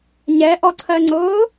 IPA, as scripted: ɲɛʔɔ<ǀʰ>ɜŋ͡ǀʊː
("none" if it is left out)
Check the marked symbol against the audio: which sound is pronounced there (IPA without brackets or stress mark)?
ǀʰ